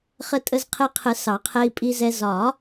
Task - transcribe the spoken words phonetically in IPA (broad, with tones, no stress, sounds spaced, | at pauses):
χ ə˧ tʼ ə˧ z qʰ ɛ˧ qʰ ə˨˩˦ s ɑ˨˩˦ qʰ ɛ˧ i̯ pʼ i˧ z ɛ˧ z ɒ˨˩˦